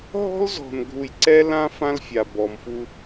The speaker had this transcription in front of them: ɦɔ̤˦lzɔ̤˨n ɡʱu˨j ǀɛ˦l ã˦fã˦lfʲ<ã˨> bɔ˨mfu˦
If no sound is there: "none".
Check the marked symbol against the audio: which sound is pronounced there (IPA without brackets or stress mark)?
a˨